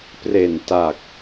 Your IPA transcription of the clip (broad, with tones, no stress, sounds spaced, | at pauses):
p r e˨˩ n t a˨˩ k̚